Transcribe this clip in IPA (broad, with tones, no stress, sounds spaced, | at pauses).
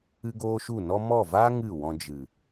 ɨ˧ ɡ oː˧ ʃ u˦˨ n ɔ˦ m ɔ˦˨ v aː˦ ŋ ɨ˦˨ w ɔ̃˧ d͡ʒ ɨ˨